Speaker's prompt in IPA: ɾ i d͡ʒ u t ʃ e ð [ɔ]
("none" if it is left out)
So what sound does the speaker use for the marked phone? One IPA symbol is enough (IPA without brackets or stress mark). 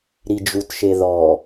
ɔ